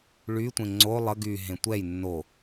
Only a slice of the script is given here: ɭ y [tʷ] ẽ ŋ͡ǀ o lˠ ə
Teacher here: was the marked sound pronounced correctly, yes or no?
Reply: yes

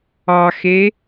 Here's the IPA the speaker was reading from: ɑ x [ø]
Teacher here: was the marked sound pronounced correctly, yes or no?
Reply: no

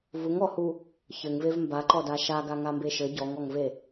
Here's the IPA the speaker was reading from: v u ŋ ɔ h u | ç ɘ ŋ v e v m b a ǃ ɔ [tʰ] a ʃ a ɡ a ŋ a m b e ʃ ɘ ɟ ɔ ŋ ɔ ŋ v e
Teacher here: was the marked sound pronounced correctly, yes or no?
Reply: no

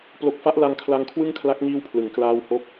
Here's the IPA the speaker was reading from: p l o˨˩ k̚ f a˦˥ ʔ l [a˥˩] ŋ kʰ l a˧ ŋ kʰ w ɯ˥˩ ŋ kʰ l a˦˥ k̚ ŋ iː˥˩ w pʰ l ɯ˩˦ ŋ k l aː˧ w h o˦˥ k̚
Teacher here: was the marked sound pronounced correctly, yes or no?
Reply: no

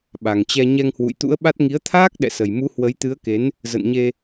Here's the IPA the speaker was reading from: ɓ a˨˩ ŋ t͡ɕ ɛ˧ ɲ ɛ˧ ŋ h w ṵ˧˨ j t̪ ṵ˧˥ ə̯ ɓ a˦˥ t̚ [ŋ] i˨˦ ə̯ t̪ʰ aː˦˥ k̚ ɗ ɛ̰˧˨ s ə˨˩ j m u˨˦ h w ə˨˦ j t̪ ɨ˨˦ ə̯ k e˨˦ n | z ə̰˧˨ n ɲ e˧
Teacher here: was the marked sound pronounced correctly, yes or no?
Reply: yes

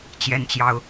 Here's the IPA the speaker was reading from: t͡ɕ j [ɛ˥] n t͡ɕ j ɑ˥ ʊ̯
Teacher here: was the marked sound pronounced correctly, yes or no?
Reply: yes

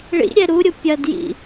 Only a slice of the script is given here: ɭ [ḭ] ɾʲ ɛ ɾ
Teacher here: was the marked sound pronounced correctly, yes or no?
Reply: yes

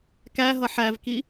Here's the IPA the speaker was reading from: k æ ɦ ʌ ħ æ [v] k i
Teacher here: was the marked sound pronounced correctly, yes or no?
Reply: yes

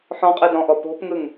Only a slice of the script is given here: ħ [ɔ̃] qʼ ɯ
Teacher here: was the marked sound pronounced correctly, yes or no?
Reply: yes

